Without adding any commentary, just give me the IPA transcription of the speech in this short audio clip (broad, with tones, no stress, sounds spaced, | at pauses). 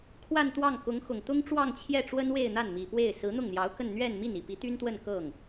kʰ w a˥˧ n t̪ w ɑ˥˩ ŋ k ʊ˧˥ ŋ x ʊ˨˩ ŋ t̪ ʊ˥ ŋ ʈ͡ʂ w ɑ˥˧ ŋ t͡ɕʰ j ɛ˥˩ ʈ͡ʂ w ə˥ n w e˥˧ ɪ̯ n̪ a˥˩ n m i˨˩ p w e˥˩ ɪ̯ s ɹ̩˧˥ n̪ ʊ˥˩ ŋ n̪ j ɑ˧˥ ʊ̯ k ə˥˧ n n̪ ɥ ɛ˥˧ n m i˥˩ n i˨˩ p i˧˥ t̪ y˥ n t̪ w ə˥˧ n k ɤ˥˩ ŋ